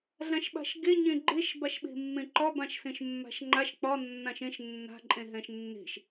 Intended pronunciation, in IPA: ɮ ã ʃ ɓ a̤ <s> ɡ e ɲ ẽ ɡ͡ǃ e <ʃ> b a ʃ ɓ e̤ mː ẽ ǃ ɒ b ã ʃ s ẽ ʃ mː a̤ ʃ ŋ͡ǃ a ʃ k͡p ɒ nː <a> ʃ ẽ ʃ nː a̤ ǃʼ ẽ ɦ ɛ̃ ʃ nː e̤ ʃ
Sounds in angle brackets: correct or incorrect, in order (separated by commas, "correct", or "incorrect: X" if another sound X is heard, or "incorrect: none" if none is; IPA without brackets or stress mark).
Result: incorrect: ʃ, correct, incorrect: ã